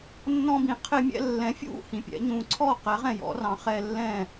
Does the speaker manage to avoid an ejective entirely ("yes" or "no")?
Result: yes